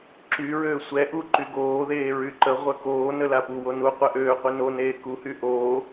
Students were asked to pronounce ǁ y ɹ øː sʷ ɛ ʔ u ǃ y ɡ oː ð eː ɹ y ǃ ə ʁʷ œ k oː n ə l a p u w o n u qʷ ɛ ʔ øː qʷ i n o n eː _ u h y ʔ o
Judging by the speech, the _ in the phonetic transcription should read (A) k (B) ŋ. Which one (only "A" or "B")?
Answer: A